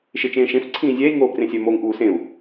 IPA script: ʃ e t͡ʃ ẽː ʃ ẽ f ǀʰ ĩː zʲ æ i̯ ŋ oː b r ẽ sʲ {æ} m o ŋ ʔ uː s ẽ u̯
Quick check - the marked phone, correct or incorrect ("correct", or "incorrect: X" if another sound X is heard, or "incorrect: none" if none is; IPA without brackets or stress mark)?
correct